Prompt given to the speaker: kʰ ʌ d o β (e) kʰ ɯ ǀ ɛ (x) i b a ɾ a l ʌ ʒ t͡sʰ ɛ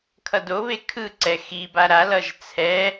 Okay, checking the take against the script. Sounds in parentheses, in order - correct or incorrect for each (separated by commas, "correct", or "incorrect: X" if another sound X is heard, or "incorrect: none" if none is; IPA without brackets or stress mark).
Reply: correct, correct